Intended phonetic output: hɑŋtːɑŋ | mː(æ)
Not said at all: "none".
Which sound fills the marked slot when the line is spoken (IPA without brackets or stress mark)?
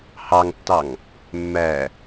æ